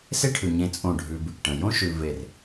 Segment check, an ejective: present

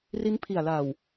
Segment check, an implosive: absent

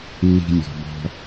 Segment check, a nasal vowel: absent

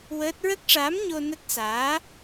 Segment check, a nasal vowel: absent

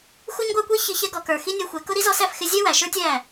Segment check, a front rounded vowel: absent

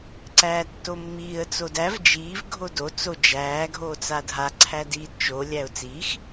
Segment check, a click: present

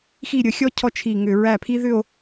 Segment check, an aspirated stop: present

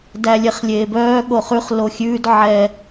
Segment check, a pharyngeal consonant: present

